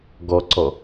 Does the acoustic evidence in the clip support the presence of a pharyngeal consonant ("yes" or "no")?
no